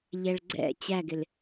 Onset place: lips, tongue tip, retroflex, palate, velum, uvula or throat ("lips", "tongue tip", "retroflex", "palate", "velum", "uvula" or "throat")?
palate